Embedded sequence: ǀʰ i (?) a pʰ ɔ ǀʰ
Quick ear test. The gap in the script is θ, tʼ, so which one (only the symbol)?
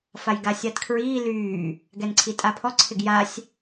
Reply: tʼ